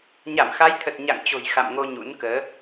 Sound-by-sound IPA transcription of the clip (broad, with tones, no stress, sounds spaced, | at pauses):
ɲ a˧˩ m x a˨˦ j t̪ʰ ə˨˩ t̚ ɲ a̰˧˨ ŋ t͡ɕ o̤˨˩ j x a̰˧˨ m ŋ o˧ ɲ ṵ˧˥ n k əː˨˦